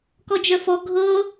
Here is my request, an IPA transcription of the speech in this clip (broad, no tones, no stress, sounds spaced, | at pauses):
k ɔ d͡ʒ œ f ɔ ɡʱ ɤ